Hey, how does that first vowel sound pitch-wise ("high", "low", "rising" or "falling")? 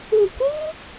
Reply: low